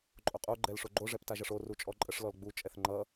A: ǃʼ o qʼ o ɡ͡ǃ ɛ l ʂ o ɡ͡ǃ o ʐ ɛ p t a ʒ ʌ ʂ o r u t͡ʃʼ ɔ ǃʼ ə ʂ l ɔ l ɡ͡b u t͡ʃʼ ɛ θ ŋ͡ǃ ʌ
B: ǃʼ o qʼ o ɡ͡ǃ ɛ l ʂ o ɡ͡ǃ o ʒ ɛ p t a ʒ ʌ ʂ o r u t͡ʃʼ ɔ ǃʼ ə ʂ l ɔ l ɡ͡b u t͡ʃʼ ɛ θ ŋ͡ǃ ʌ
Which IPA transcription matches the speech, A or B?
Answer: A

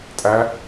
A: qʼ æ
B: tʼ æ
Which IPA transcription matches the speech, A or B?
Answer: B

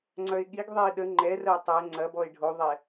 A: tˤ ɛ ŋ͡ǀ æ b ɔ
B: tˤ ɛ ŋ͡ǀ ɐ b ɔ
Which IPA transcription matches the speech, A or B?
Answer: B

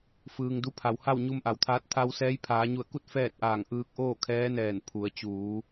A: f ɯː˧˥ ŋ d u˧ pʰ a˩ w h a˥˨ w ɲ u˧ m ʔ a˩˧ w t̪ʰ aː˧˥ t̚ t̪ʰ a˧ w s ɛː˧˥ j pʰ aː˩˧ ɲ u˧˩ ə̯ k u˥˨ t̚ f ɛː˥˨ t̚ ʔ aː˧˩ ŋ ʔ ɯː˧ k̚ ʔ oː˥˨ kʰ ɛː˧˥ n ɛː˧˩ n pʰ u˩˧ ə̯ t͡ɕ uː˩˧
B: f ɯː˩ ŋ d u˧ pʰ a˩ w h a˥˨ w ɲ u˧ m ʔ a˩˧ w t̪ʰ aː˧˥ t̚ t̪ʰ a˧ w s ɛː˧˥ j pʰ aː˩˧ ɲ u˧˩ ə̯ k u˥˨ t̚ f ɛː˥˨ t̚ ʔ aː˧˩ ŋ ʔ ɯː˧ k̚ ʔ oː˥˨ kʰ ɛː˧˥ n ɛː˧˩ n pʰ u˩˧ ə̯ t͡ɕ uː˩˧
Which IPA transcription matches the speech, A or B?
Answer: B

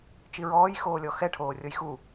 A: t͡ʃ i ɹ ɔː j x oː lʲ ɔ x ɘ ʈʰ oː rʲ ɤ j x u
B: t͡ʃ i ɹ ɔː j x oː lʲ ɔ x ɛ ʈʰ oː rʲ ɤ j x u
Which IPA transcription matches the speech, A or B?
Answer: B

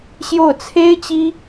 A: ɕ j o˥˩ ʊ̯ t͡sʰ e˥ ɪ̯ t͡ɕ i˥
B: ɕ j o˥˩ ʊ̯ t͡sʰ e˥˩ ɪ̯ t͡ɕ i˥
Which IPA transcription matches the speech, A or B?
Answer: A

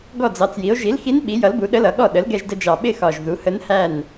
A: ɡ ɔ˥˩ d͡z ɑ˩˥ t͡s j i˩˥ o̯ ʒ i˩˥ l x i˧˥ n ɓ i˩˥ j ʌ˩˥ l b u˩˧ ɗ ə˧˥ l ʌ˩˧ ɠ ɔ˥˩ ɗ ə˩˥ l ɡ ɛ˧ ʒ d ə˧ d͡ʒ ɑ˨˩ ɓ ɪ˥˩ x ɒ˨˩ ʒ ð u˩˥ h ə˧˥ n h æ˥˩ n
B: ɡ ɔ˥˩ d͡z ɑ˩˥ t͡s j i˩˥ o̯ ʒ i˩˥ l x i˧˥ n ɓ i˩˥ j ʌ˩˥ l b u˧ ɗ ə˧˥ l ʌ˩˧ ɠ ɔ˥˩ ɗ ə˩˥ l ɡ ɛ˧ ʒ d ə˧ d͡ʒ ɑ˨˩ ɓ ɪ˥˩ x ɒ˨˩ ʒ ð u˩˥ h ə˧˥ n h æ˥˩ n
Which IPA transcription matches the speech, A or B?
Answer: A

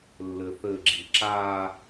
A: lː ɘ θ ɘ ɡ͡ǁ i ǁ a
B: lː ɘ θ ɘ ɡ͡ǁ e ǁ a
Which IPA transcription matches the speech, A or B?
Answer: A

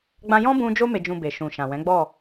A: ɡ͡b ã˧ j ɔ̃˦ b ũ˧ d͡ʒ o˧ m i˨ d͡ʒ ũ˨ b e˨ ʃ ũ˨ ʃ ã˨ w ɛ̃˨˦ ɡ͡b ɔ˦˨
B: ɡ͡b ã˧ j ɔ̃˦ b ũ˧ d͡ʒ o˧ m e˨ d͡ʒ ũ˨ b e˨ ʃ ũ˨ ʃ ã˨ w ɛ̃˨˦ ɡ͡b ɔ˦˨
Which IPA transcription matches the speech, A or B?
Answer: B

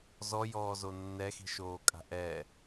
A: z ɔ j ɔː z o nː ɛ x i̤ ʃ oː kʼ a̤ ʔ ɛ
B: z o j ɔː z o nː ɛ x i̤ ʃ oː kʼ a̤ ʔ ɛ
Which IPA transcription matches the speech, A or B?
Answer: A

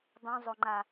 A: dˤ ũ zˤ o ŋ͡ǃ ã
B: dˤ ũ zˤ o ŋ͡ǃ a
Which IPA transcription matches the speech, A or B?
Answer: B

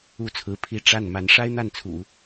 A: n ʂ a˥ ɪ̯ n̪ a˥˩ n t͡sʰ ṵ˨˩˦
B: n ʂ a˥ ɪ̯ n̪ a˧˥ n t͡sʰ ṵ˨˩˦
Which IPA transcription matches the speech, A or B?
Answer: A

